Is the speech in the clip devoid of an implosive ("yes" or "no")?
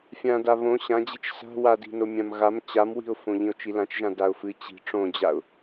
yes